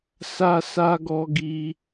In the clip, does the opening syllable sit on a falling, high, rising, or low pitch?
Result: high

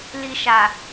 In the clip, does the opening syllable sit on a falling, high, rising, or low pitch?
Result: high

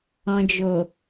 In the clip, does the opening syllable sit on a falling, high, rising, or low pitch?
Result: low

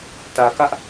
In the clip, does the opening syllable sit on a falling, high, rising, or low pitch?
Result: low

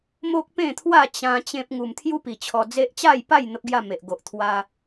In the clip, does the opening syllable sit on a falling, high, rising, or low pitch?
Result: high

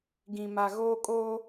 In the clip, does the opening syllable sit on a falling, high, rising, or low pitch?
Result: low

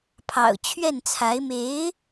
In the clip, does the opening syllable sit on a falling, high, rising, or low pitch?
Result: low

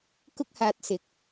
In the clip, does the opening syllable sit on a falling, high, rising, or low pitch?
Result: high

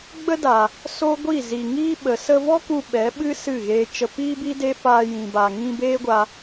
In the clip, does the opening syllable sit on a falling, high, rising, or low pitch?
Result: high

